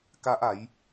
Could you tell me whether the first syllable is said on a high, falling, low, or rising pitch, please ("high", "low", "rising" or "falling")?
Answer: high